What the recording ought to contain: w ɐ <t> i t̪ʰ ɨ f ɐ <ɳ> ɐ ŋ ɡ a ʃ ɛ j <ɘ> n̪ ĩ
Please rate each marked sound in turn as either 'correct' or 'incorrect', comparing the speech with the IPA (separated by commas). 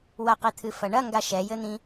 incorrect, correct, correct